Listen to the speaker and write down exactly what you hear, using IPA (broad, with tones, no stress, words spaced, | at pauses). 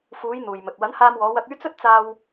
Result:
fuː˨˧j n̪uː˨jmɵ˨t̚ wɐ˨˥nhaː˧mwɔː˨˧ wɐ˧k̚yː˥ t͡sɵ˥t̚t͡saː˧w